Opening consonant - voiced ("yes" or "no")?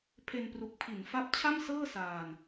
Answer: no